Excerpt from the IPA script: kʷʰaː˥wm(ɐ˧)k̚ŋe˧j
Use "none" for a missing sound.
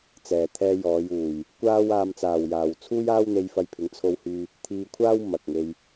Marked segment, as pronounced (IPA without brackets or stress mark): ɐ˨